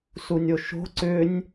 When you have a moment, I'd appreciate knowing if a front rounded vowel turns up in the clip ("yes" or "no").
yes